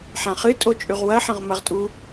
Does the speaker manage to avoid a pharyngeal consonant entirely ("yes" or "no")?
no